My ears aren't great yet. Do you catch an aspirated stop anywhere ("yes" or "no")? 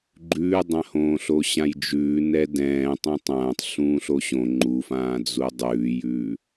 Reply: no